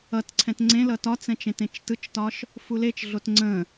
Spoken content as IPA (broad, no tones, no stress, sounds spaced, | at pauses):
ʌ t ǀʰ ɛ̃ t ŋ͡ǀ ẽ l ʌ t ɒ t͡s ɛ̃ t͡ʃ ẽ t ẽ t͡ʃ t ɯ t͡ʃ t ɒ ʃ | f u l e t͡ʃ ɮ o t ŋ͡ǀ ə̃